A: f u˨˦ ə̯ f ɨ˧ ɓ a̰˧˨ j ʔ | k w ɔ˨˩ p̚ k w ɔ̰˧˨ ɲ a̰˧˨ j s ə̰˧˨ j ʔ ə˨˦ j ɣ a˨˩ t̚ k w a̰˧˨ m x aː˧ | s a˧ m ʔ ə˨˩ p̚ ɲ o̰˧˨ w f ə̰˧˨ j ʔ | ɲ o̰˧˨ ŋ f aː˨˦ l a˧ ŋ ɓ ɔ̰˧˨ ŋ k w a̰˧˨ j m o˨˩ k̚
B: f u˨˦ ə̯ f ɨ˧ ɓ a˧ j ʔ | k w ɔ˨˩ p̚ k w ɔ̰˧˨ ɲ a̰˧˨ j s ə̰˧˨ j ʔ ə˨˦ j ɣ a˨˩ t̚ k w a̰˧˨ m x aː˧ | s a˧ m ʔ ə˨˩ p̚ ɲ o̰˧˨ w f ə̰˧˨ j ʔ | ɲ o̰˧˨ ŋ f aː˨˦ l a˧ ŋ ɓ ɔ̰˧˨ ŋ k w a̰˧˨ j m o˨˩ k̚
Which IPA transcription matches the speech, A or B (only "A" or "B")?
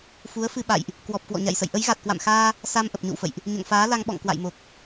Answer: A